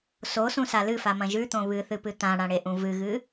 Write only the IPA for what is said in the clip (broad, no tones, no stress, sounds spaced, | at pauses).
s o s ũ s a l ɨ f a m ɐ̃ ʒ ʉ t̪ õ β ɨ θ ɨ p ɨ t̪ ã ɽ ã ɽ e ʔ ũ v ɨ ɣ ɨ